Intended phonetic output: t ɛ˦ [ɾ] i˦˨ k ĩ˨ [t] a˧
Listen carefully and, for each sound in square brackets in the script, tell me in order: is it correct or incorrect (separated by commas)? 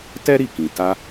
correct, correct